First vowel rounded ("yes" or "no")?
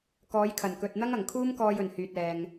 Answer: yes